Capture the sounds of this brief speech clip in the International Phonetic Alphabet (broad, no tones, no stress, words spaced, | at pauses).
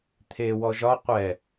t̪ʰe wɔʒɒ qʷɛ